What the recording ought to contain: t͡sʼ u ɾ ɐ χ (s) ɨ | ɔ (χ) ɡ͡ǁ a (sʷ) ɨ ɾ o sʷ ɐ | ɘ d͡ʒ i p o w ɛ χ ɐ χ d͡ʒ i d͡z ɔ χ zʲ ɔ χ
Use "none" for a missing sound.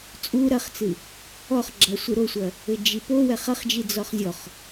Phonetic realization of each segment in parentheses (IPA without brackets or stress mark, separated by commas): t͡s, χ, sʷ